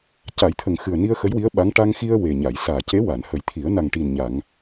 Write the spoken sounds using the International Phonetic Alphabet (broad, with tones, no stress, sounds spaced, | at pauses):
c a˨˩˦ j t̪ʰ ə˨˩ ŋ x ɨ˨˩ ə̯ n i˧ ə̯ x ə˧˥ j w i˧˥ ə̯ ɓ a˧˥ ŋ ʈ a˧ ŋ x i˧ ə̯ w e˨˩ ɲ a˨˩˨ j s aː˨˩ c e˧˥ w a˨˩˨ n h ə˨˩˦ j t̪ʰ i˨˩˦ ə̯ n a˨˩ ŋ ʈ i˨˩ n ɲ a˨˩˨ ŋ